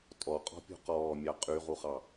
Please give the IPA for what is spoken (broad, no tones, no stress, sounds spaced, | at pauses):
tʼ ɔ qʼ ɔ̤ pʲ ṳ q ɔː mʲ ɑ qʼ y ʁ u χ ɑ